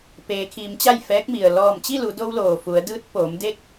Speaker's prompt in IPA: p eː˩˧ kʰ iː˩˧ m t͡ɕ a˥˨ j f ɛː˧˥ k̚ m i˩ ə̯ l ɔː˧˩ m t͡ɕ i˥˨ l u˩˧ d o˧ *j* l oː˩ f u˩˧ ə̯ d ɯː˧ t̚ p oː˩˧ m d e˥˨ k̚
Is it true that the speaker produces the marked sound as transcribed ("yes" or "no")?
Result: no